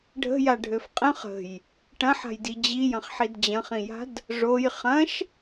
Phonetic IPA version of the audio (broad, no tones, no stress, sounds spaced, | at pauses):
ɖʱ ə̤ j a ɖʱ ø f qʼ ə̃ χ ə̤ j | ʈ ɐ̃ ħ a̤ j d i d͡ʑ i j ɐ̃ χ ħ i d d͡ʑ ɐ̃ χ ĩ j a̤ d | ʐ o j χ ɐ̃ ʃ